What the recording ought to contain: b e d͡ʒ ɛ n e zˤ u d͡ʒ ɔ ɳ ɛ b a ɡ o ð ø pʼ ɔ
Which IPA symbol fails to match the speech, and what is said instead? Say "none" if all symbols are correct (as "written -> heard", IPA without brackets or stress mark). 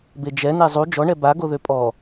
none